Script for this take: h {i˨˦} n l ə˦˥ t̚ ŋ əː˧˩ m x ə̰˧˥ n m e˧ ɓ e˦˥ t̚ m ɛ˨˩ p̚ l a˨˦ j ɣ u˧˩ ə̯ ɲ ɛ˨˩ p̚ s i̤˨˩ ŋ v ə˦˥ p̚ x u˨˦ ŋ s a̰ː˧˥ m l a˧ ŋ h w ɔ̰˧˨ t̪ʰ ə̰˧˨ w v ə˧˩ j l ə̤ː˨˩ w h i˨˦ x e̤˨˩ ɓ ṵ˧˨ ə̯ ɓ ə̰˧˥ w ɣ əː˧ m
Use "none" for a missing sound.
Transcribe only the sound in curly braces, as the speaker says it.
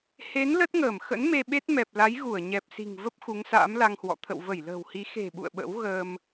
e˨˦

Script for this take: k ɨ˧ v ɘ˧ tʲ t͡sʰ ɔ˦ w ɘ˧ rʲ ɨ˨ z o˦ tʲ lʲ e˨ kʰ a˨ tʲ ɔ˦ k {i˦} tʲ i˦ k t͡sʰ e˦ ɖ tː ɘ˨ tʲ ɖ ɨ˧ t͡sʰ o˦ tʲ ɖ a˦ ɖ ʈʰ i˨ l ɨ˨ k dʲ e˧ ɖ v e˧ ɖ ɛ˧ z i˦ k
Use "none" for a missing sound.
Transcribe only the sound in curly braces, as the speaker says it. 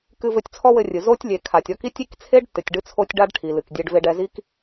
i˦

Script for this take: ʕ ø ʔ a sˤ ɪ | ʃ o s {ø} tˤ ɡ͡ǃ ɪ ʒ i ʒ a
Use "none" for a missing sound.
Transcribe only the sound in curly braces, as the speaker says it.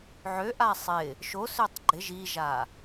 ø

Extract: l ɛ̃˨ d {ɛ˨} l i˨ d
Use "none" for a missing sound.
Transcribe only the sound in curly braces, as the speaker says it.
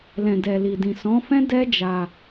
ɛ˨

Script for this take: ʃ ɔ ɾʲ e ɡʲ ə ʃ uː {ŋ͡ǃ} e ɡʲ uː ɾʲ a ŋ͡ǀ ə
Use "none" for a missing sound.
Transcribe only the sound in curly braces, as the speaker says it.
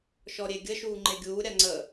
ŋ͡ǃ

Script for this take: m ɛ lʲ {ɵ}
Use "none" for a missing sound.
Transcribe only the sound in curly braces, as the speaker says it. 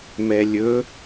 ɵ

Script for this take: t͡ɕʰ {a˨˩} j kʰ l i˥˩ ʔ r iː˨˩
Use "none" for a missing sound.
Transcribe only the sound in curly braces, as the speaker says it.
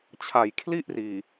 a˨˩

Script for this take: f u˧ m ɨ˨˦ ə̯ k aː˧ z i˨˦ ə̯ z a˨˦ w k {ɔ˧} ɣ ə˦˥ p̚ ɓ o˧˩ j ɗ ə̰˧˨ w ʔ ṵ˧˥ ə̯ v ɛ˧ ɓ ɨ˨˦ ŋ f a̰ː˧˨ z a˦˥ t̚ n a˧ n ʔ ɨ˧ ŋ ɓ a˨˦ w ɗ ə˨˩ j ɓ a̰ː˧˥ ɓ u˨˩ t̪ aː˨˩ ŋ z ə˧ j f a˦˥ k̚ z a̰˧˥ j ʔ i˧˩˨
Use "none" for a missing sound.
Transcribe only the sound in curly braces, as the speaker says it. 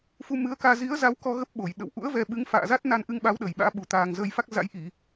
ɔ˧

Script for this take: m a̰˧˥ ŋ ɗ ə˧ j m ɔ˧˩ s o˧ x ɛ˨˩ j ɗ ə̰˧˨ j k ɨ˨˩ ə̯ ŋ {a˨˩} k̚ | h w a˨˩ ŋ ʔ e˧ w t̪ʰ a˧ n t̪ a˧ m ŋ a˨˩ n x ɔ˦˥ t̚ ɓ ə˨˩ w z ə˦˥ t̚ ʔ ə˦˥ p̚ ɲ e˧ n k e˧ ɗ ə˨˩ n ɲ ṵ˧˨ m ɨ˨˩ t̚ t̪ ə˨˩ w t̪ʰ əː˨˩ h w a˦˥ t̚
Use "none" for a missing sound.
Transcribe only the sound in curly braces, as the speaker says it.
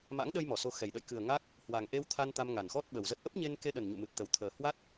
a˦˥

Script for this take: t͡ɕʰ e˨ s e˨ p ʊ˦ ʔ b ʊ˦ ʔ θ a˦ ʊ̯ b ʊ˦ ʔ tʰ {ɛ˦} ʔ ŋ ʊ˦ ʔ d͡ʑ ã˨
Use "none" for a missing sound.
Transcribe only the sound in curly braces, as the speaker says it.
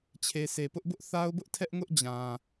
ɛ˦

